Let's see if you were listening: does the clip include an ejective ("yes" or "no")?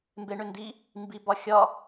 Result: no